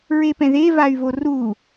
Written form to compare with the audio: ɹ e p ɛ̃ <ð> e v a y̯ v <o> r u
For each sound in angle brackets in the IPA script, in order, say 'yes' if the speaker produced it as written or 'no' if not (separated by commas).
yes, yes